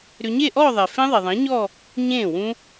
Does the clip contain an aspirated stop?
no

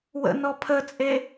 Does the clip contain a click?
no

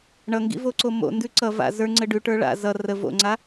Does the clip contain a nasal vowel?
no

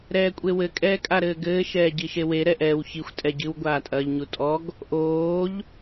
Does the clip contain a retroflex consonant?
no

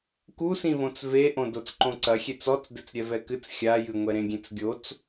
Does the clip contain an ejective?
no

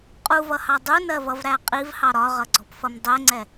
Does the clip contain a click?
yes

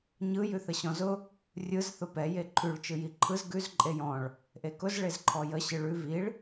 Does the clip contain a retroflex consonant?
yes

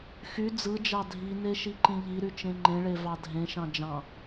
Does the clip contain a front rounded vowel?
yes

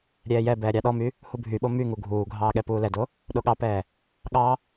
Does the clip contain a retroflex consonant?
no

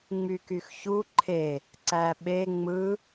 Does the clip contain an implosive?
yes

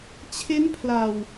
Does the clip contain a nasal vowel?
no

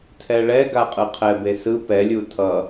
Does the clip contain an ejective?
yes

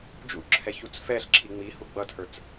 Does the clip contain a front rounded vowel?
no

